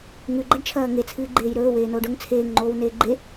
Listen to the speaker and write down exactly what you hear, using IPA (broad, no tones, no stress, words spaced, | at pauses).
ŋʉɡ͡ǃɐɖt͡ʃʰɐː ŋet͡sʰɨːɡ͡ǃeːj ɾɵːweːnoːɖ ɵŋ t͡sʰeːŋŋ͡ǃoːwneː ɡ͡ǃe